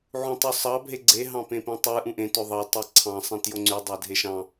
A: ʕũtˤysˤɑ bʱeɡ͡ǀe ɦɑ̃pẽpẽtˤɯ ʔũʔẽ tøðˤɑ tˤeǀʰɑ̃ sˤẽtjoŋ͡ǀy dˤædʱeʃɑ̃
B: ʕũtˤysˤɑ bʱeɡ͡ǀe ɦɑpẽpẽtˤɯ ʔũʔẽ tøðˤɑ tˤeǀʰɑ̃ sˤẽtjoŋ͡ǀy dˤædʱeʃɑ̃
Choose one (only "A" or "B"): A